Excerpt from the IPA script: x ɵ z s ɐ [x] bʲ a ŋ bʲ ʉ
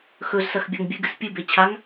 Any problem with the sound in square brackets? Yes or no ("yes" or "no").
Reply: no